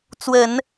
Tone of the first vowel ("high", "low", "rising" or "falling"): low